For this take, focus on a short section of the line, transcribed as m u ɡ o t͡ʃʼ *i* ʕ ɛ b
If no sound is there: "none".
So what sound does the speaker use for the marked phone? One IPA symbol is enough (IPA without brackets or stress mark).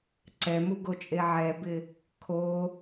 e